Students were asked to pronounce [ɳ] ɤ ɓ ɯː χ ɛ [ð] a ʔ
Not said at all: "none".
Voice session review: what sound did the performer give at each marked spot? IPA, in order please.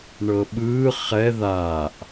ɳ, ð

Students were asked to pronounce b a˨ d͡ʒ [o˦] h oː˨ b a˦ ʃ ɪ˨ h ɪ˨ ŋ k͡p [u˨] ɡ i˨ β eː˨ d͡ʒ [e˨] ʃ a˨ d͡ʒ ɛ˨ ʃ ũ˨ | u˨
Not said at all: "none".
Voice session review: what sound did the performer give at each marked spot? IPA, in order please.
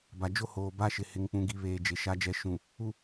o˦, ũ˨, e˨

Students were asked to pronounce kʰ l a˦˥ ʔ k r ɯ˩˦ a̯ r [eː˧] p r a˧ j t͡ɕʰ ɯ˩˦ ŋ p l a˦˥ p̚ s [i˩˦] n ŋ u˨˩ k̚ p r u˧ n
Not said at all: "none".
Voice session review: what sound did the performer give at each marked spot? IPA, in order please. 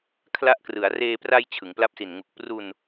eː˧, i˨˩

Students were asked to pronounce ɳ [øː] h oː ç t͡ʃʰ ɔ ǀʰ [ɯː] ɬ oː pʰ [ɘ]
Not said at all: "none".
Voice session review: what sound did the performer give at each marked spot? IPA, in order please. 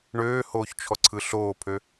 øː, ɯ, ø

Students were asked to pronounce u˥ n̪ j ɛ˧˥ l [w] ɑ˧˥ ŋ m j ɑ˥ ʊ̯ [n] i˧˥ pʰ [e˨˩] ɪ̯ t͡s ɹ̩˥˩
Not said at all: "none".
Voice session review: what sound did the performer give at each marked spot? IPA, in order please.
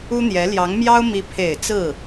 j, m, e˨˩

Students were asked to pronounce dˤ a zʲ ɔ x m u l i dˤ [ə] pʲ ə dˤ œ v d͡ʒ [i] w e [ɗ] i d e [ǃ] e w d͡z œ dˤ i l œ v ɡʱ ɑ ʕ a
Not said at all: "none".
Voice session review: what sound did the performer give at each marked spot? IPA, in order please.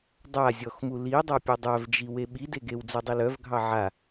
a, i, ɓ, ɡ

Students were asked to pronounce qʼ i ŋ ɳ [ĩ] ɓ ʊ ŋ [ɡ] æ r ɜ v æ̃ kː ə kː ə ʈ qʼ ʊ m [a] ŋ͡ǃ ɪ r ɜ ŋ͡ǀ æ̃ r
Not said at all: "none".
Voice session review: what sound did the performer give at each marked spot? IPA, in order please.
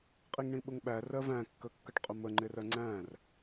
ĩ, ɓ, ə

